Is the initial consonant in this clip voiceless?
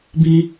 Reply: no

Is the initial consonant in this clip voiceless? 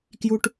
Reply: yes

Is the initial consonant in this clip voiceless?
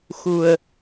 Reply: yes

